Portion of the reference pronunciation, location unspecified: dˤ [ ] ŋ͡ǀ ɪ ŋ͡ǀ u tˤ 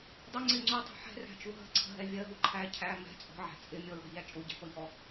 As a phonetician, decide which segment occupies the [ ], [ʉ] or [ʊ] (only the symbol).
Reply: ʊ